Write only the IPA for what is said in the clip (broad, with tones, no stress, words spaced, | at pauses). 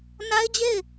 na˦ɪ̯d͡ʑe˦˨ɪ̯